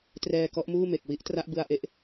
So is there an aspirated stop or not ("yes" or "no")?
no